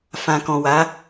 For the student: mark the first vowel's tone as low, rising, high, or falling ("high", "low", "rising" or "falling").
low